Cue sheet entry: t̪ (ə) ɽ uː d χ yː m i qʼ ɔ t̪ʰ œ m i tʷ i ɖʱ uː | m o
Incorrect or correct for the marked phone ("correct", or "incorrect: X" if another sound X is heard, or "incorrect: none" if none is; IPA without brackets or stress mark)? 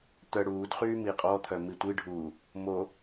correct